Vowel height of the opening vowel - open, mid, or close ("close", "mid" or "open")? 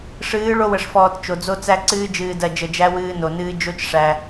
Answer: close